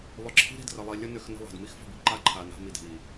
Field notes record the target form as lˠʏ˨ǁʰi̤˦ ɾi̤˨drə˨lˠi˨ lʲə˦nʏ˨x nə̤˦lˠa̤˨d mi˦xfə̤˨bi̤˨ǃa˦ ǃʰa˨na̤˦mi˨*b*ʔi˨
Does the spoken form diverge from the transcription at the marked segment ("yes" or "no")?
yes